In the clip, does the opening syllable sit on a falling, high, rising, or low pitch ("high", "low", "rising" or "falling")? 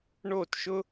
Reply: falling